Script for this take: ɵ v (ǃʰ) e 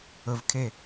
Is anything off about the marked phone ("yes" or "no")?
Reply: yes